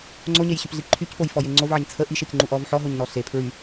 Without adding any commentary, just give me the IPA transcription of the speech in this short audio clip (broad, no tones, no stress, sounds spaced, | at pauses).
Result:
ŋ͡ǀ o ɲ e j ɕ y p ɮ i ǃʰ y c p o j f ɔ j e ŋ͡ǀ o v ʕ ə ɲ t͡sʰ ə ʔ i ʃ e c ŋ͡ǃ u ʔ ɔ v ħ ɔ ɦ o ɲ n ɔ ɬ e pʰ ɹ y